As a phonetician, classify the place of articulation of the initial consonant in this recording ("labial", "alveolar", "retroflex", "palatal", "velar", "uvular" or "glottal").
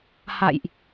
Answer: glottal